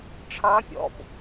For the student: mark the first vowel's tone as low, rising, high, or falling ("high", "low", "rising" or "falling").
rising